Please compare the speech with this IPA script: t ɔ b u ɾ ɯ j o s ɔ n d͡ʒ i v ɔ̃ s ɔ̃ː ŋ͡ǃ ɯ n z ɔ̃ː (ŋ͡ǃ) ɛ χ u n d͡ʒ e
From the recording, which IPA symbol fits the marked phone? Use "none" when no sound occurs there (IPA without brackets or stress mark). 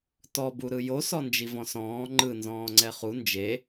ŋ͡ǀ